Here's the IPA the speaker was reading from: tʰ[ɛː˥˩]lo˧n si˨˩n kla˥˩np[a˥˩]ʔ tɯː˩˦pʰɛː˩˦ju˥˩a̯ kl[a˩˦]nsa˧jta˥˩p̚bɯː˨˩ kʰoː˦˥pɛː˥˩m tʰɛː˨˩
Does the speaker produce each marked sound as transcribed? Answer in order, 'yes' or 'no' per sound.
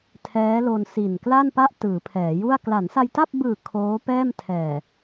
no, yes, yes

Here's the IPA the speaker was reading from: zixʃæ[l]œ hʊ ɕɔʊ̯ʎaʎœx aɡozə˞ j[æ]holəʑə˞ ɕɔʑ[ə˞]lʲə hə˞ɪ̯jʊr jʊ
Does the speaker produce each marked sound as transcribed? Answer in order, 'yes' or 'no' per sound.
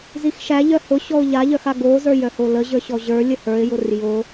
no, no, yes

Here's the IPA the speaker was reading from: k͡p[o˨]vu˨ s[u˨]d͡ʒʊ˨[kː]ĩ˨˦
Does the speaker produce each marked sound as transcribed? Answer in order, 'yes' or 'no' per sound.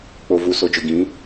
yes, no, no

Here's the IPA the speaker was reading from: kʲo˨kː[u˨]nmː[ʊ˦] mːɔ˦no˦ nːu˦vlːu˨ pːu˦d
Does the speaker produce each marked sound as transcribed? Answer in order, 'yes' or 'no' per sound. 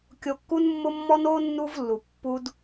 no, yes

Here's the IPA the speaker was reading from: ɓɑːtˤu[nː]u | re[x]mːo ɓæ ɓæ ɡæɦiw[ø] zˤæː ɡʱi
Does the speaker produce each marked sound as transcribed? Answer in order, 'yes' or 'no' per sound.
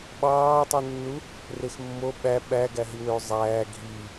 yes, yes, yes

